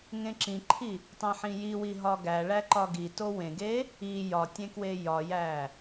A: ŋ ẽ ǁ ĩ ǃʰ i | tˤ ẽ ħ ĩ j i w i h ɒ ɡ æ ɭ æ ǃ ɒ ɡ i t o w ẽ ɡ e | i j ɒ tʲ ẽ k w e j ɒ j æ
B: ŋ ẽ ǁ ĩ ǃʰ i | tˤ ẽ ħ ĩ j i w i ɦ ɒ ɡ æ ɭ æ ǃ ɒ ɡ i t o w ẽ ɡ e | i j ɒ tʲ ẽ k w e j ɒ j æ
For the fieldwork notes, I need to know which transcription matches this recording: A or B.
B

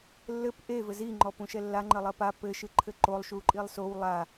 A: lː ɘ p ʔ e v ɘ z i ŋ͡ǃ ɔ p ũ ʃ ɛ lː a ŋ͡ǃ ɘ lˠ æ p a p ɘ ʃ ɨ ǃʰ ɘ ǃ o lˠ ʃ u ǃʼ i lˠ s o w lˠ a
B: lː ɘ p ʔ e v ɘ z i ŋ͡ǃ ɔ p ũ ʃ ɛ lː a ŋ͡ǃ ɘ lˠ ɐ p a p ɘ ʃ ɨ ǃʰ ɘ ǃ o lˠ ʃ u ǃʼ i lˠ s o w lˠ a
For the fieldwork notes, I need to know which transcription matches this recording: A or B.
B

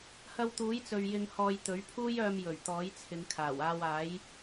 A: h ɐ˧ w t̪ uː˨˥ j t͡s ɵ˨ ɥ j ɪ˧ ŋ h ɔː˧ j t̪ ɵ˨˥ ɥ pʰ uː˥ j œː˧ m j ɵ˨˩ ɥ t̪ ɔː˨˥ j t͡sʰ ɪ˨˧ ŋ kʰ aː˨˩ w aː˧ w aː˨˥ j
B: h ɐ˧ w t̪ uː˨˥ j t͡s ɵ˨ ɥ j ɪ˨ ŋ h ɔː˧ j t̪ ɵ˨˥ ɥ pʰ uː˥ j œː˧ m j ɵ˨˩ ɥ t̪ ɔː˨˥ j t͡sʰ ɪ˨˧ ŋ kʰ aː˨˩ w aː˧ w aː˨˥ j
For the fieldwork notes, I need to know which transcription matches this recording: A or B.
A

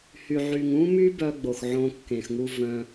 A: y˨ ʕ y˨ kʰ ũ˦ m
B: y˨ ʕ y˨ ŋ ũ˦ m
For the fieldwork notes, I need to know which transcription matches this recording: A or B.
B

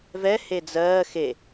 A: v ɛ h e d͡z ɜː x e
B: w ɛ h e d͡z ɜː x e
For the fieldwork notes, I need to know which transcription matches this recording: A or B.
A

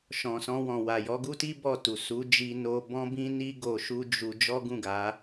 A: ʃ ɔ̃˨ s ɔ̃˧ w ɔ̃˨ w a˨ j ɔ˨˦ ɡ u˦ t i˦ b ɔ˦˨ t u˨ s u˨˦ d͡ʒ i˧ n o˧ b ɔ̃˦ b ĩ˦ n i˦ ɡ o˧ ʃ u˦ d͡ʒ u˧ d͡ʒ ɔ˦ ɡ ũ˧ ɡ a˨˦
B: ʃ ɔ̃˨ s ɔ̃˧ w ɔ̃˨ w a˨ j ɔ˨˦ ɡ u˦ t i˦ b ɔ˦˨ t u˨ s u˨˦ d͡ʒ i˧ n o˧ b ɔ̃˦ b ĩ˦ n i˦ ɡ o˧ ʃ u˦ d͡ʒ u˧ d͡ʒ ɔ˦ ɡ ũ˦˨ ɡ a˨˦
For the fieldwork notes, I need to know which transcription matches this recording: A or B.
B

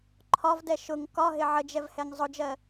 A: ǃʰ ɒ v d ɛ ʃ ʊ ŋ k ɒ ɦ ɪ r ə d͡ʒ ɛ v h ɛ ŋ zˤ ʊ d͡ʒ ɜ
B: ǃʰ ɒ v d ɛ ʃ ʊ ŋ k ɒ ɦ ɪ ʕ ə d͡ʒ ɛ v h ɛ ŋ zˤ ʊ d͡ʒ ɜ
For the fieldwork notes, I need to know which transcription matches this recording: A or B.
B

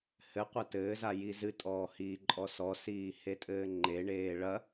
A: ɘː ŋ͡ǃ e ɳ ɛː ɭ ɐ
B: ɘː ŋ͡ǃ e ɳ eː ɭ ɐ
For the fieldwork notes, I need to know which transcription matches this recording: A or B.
B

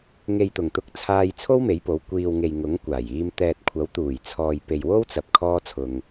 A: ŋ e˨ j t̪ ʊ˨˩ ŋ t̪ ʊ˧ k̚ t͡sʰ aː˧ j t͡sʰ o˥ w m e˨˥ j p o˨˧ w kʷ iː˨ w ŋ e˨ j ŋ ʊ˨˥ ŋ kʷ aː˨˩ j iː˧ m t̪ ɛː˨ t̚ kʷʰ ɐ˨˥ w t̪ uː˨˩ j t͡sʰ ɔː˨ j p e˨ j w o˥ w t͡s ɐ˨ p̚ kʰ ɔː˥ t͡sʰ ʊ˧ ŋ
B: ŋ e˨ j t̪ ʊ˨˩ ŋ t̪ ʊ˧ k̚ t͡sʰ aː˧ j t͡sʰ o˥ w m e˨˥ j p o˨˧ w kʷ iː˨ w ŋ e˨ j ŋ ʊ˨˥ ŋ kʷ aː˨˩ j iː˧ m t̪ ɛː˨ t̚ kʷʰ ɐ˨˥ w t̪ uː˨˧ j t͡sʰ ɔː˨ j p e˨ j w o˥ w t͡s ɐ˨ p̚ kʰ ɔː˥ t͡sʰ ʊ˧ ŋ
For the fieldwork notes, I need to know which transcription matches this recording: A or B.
A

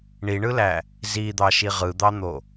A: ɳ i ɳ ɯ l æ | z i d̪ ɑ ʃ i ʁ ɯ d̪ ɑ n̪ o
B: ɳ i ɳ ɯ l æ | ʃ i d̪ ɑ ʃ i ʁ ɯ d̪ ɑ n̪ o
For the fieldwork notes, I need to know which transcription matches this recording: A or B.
A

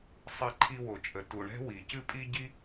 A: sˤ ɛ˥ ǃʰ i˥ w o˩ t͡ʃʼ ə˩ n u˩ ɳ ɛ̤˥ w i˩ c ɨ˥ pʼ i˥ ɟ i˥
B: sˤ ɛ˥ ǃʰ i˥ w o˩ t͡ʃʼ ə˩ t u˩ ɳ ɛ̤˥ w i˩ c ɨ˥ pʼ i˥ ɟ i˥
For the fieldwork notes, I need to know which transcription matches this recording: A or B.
B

